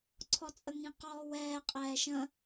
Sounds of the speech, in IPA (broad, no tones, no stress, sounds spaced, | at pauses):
ǀʰ ɔ t͡sʼ ə ŋ ĩ q ɔː w ɛː qʼ ɛː ʃ ə̃